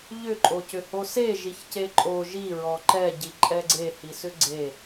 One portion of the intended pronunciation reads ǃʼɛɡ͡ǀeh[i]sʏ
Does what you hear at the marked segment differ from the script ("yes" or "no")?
no